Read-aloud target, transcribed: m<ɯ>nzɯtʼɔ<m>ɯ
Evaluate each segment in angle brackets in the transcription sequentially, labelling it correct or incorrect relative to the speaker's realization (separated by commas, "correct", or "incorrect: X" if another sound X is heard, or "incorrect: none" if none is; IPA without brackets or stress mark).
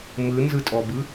correct, incorrect: b